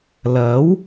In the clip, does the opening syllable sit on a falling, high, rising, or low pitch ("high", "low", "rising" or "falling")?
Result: rising